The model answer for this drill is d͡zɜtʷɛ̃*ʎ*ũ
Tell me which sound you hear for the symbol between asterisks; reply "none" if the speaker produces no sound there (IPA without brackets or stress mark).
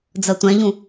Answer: ʎ